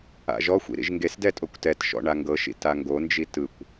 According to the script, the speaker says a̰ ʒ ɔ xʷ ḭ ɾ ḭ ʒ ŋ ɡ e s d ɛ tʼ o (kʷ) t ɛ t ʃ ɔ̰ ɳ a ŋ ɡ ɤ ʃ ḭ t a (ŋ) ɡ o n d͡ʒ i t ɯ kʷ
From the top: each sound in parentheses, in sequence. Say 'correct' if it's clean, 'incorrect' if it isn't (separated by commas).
correct, correct